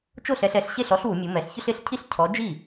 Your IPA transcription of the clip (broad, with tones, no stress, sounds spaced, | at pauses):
t͡ʃ o˥˩ ɬ ɛ˩˧ ɬ ɛ˩˧ ɬ ɕ e˥˩ ɬ ɔ˨˥ ɬ w u˩˧ mʲ u˩˧ m ɛ˩˧ ɬ ç ʊ˦ ɬ ɪ˨˥ ɬ cʰ i˥˩ ɬ cʰ ɔ˨˥ d͡ʒ i˥˩